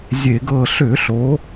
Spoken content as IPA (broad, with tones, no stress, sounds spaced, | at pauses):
zʲ e˧˩˧ ɡ ɤ˦˨ ɬ ʏ˧˩˧ ɬ o˩˧